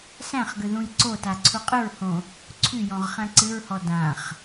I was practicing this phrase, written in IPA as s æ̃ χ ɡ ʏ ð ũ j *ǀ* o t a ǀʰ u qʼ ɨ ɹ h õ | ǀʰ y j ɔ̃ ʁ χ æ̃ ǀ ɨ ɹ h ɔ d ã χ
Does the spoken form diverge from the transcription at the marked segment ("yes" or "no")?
no